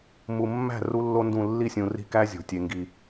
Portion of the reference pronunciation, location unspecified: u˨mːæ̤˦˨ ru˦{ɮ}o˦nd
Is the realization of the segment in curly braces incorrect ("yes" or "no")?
yes